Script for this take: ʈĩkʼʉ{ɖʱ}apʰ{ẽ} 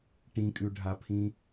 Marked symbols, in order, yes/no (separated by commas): yes, no